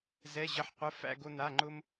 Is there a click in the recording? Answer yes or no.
yes